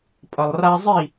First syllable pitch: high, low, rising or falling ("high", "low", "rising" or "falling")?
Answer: low